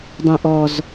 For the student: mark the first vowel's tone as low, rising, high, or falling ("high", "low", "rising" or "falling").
low